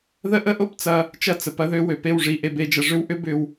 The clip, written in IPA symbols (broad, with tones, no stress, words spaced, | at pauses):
ðə˦ʔə˦ʔo˦pt͡sɐ˧ | t͡ʃɐ˦t͡sə˨ pɐ˦ðø˦wø˨ pe˦˨wʐi˨ ʔe˧be˧d͡ʒɐ˧ ʐʏ˦wʔʏ˦ bʏ˧w